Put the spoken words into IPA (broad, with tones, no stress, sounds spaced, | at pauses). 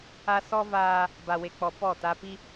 a˦ s ɔ˦ v aː˦ | b a˨ w e˨ k͡p ɔ˨ p ɔ˦˨ t a˦ p i˦